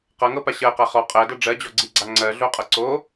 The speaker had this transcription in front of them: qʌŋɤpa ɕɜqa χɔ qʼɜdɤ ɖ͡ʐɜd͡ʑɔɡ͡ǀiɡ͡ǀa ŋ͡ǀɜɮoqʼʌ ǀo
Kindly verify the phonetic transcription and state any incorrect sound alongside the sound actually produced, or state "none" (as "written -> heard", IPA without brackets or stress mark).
none